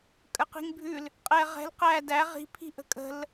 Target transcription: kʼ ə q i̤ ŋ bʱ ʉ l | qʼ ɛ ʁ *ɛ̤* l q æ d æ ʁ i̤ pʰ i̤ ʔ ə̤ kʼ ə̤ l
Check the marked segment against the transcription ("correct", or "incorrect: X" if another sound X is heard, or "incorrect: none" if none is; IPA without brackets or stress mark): correct